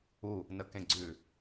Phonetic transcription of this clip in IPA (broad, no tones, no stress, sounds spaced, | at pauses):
u | n ə k ẽ ɡ͡ǀ ʉ